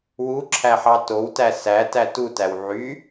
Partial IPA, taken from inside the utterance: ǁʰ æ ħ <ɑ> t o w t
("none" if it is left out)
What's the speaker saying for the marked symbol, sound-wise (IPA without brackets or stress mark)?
ɑ